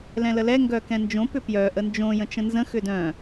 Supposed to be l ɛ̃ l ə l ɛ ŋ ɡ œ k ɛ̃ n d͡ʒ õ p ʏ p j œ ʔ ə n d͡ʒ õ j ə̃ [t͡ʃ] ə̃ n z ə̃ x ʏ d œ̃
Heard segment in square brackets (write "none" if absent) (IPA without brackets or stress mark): t͡ʃ